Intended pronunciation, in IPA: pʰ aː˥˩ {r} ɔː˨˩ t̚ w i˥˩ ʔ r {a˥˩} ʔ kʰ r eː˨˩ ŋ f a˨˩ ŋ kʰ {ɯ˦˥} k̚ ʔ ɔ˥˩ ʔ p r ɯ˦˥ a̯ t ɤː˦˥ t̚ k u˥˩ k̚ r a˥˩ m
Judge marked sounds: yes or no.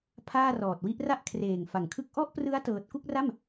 yes, yes, no

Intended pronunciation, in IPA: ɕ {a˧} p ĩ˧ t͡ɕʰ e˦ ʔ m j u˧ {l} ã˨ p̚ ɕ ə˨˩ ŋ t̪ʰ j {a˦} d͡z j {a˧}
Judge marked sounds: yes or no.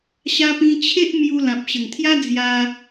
yes, yes, yes, yes

